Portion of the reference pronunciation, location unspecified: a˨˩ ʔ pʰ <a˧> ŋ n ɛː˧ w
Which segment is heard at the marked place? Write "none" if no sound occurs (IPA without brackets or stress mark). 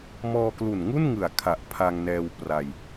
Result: a˧